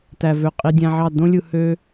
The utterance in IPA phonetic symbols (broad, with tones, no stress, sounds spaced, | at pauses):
t æ˨ v ø˨ qʼ i˧ dʲ æ̃˧ ʕ ɑ˦˨ d õ˦ lʲ ɯ˧ h ø˦